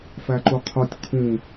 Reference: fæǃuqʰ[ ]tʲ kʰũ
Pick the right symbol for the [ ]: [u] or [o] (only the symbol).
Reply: o